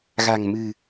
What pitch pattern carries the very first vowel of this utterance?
low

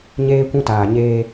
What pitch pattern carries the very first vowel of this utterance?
high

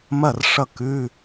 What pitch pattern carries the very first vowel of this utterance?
falling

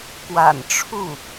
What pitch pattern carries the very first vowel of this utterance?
low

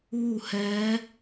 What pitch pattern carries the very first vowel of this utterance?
falling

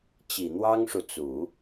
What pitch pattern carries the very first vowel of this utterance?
low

